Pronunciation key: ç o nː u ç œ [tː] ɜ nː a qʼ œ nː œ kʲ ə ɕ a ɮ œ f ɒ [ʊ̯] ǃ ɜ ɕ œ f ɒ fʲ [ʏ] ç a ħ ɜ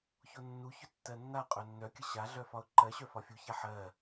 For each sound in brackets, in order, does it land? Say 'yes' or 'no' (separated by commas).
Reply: yes, yes, no